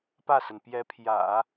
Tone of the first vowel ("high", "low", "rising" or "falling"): falling